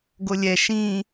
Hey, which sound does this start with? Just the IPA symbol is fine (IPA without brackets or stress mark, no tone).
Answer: ɡ